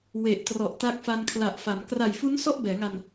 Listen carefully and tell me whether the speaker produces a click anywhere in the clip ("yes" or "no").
no